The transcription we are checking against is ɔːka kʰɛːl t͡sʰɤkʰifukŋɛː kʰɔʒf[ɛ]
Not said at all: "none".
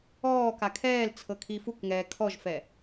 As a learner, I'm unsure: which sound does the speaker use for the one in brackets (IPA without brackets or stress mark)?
ɛ